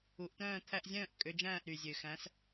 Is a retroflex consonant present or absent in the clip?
absent